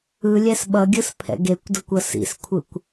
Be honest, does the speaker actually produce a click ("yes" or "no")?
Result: no